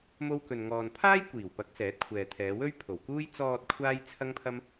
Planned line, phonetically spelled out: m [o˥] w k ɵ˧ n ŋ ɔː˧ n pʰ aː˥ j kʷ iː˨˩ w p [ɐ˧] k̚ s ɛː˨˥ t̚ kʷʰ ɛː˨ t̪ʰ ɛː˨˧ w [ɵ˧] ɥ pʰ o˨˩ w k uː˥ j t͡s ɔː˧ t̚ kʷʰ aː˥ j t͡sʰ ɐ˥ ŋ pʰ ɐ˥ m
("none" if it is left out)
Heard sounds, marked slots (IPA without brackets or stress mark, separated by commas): o˥, ɐ˨˥, ɵ˥